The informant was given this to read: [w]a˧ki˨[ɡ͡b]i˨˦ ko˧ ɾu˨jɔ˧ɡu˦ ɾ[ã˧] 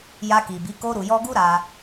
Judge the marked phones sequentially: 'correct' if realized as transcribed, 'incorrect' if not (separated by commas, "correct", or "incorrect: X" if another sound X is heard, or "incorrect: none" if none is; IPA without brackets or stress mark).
incorrect: j, incorrect: b, incorrect: a˧